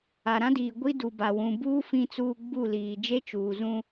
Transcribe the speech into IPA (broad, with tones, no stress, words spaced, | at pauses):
a˨ɾã˦diː˨ ɡʷi˦du˨ba˨ wũ˨buː˦ fĩ˦t͡suː˦ ɡ͡bu˦˨liː˨ d͡ʒe˦t͡ʃuː˨zũ˦